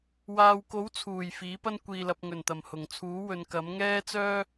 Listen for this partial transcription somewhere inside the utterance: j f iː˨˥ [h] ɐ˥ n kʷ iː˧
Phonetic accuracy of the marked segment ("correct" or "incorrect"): incorrect